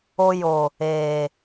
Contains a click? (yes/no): no